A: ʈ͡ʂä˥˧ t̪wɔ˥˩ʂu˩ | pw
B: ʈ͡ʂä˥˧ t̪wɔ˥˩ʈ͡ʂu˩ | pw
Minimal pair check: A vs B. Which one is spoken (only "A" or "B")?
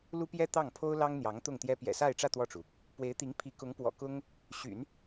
B